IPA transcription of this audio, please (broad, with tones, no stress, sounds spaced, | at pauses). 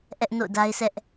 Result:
ʔ ɛ˦ ʔ n o̰˦˨ ʊ̯ d a˦ ɪ̯ sʰ ɛ˦ ʔ